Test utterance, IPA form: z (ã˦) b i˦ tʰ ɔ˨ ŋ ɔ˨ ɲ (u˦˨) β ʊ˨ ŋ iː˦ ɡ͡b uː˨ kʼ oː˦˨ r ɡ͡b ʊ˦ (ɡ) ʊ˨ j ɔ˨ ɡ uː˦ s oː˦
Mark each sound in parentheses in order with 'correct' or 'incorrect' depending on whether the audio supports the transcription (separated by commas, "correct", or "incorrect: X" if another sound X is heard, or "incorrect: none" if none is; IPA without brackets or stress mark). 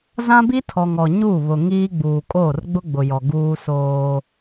correct, correct, incorrect: ɡ͡b